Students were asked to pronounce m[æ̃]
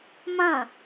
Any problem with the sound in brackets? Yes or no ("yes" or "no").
yes